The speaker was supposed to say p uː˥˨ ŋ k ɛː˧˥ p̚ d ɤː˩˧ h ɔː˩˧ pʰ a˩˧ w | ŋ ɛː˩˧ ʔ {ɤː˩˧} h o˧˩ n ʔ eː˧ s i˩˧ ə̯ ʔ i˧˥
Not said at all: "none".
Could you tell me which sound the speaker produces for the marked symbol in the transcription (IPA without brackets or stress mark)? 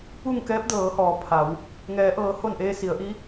ɤː˩˧